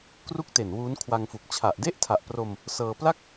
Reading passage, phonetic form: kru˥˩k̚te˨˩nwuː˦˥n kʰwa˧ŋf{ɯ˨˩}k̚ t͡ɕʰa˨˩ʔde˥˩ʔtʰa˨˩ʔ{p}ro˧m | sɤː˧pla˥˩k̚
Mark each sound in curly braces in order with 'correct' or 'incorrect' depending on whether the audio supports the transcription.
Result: incorrect, correct

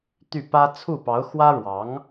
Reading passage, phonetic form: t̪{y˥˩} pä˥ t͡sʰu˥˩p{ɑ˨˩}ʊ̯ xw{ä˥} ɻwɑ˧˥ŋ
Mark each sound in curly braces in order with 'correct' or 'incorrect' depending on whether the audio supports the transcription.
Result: correct, incorrect, correct

